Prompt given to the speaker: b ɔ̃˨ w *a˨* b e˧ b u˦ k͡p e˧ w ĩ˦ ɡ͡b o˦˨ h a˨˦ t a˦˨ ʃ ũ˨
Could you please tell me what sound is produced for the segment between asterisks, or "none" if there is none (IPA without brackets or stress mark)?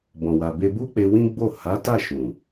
a˨